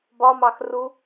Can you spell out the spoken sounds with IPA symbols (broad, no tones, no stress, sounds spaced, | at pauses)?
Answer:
b ɒ m ɑ x r u